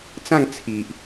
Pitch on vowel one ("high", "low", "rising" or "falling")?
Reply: falling